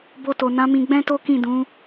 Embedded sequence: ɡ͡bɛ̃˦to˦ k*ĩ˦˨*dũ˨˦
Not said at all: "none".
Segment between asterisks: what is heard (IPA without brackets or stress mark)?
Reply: ĩ˦˨